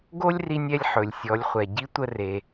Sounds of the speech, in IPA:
ɡ o˥ lʲ r i˧ nʲ ɛ˧ lʲ ħ ɵ˩ lʲ sʲ ɔ˩˧ lʲ χʷ ɛ˩ ɟ i˧˥ tʷ ə˧ r e˩

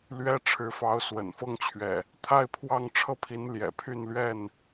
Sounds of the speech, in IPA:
l ɥ ɛ˦ ʈ͡ʂʰ ɻ̩˨˦ f ɑ˨˦ ʊ̯ s w ə̰˨˩ n f ɤ˦ ŋ t͡ɕʰ ɥ ɛ̰˨˩ | t̪ʰ a˥˨ ɪ̯ pʰ w ɑ˥˨ ŋ ʈ͡ʂʰ ɤ˥˨ pʰ i˨˦ n l j ɛ̰˨˩ pʰ y˥˨ n l ɥ ɛ˥˨ n

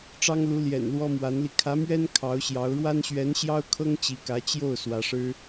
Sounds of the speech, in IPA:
ʈ͡ʂ ɑ˥ ŋ l u˧˥ l j ɛ̰˨˩ n l w ɔ˥ m w a˧˥ n l i˧ kʰ ä˧˥ m ɥ ɛ˥ n kʰ ɑ˧˥ ʊ̯ ɕ j ɑ˧˥ ʊ̯ ɻ w a˥ n ɕ ɥ ɛ˧˥ n ɕ j ɑ˥ ʊ̯ kʰ ɤ˥ ŋ t͡ɕ i˧˥ k ä˧˥ t͡ɕ j o˥˩ ʊ̯ s w ä˧˥ ʂ ɻ̩˥

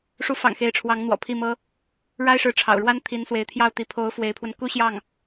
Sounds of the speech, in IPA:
ʂ u˧˥ f ɑ̰˨˩ ŋ x e˧˥ ɪ̯ ʈ͡ʂʰ w ɑ˧˥ ŋ n̪ w ɔ̰˨˩ pʰ i˥˩ m ɤ˥ | ɻ a˥ ɪ̯ ʂ ɻ̩˧˥ ʈ͡ʂʰ ɑ̰˨˩ ʊ̯ ɻ w a˥ n t̪ʰ i˧˥ n s w e˧˥ ɪ̯ t̪ʰ j ɑ˥˩ ʊ̯ t̪ i˧˥ pʰ o˧˥ ʊ̯ f w e˧˥ ɪ̯ pʰ w ə˧ n k u˥ ɕ j ɑ˥˩ ŋ

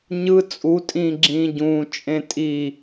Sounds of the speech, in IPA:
ɲ ɯ t͡sʼ u tʼ ĩː ɡ͡ǁ ĩː ɟ ũː t͡ʃʼ ẽ tʼ i

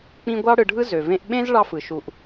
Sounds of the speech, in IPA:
k͡p ĩ˦ ɡʷ ɑ˥ ɽ ɯ˨ ɖʱ ɯ˥ z ø˩ v ẽ˦ ʔ ɓ ẽ˥ z ɭ ɑ˦ f ɯ˩ ʃ u˨ ʔ

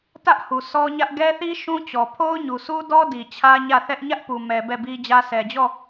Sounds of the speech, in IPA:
t ä˦ ʔ h u˨ sʰ ɔ˦ ɲ ä˦ ʔ ɡ ɛ˦ θ i˦ ʃ ũ˦ t͡ɕ ɔ˨ pʰ o˦ ʊ̯ ɲ u˨ s u˦ d ɔ˦ d i˨ t͡ɕʰ ä˦ ɲ ä˦˨ θ ɛ˦ ʔ ɲ ä˦ ʔ p u˨ m ɛ˨ b ɛ˦˨ b i˦ d͡ʑ ä˦ sʰ ɛ˨ d͡ʑ ɔ˦˨

